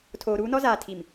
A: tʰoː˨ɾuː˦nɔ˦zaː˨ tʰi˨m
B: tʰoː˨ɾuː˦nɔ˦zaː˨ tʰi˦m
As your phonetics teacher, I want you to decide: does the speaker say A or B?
A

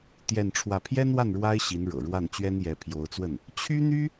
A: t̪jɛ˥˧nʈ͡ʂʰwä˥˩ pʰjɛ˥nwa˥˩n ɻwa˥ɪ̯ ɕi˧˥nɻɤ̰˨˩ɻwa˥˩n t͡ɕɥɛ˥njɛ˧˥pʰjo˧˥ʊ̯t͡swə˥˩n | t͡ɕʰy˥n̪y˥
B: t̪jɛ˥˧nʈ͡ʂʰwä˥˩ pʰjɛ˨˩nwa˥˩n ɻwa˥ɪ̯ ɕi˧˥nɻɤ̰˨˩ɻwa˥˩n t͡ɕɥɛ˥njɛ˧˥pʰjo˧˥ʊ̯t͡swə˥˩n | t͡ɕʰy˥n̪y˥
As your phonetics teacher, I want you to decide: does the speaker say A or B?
A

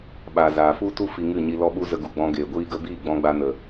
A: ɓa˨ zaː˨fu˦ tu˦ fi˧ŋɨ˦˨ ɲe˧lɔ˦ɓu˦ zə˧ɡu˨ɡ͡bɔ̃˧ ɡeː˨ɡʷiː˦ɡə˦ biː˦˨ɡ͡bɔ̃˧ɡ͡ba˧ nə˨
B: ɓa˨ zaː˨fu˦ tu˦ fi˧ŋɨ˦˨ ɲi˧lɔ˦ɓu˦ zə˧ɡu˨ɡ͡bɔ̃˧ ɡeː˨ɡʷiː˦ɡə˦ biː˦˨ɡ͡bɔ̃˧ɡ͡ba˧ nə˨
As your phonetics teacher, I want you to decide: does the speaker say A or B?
B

